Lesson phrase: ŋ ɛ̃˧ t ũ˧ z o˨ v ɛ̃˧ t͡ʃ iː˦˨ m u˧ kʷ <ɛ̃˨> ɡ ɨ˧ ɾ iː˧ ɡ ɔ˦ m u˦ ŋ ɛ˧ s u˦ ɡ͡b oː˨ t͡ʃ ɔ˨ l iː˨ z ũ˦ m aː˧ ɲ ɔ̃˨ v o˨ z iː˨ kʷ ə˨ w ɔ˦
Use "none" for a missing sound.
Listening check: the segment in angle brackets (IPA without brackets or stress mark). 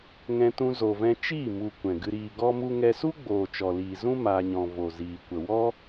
ɛ̃˨